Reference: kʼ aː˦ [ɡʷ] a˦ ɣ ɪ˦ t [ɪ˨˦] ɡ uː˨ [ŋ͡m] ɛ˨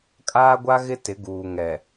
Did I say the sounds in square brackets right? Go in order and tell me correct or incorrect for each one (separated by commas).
correct, correct, incorrect